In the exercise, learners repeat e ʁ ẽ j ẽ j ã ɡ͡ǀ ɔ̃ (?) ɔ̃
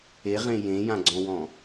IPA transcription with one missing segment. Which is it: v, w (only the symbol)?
w